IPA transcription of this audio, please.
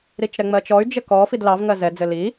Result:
ɾ i t͡ʃ ɾ ɛ ŋ͡m ɜ t͡ʃ ɔ y̯ d͡ʒ ɘ k ɔ f i d l ɑ v ŋ ɜ z ɛ d͡z ɘ l i

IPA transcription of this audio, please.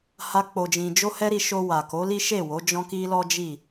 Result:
h a˧ k͡p o˧ d͡ʒ ĩ˧ d͡ʒ o˦ h ɛ˦ ɾ i˧ ʃ o˧ w a˨ k o˨˦ l i˦ ʃ e˦˨ w o˨˦ d͡ʒ ɔ̃˦ k i˦ l ɔ˦ d͡ʒ i˦˨

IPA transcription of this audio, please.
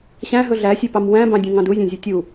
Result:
ɕ æ̃ ɦ ɵ ɮ æ sʲ e p ɑ m w æ̃ b ɑ̃ dʲ ũ ŋ ɑ̃ d u zʲ æ̃ zʲ ʉ tʲ u

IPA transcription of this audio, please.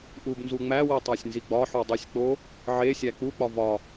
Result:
ʔ u b n z u ŋ͡m æ w i tˤ æ sʲ n z i ɡ͡b ɒ ħ u dˤ i sʲ k͡p o | ʕ e sʲ æ k͡p u k͡p ɒ v ɒ

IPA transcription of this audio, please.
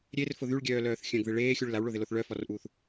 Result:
ɾʲ e r f ʊ ð y ɭ ɡʲ œː l œː θ xʲ œ̃ ɡ ð ɪ ɭ eː xʲ u ɭ l a w ɭ o ð ɪ l o θ ɭ œ f ɔ r ʔ uː θ

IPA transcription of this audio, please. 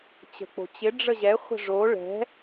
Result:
t͡ɕ ə̤ k͡p o̤ t͡ɕ ɪ ɖ͡ʐ ə ʑ ɛ χʷ ə̤ ʐ o ɭ ɛ̤

